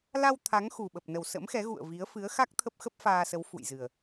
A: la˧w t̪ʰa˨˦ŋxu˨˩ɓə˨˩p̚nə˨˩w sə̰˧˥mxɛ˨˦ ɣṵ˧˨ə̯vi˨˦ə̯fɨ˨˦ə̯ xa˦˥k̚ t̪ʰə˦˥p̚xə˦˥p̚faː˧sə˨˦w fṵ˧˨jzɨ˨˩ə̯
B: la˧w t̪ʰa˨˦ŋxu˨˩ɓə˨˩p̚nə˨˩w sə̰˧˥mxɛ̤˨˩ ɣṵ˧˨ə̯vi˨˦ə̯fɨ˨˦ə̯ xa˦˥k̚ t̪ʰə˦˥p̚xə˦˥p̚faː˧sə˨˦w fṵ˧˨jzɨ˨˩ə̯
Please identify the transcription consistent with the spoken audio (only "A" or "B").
A